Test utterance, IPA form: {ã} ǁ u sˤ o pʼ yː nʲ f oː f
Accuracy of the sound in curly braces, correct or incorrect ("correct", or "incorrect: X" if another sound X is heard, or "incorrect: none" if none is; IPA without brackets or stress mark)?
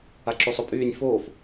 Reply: incorrect: a